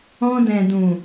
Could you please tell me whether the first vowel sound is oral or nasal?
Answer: nasal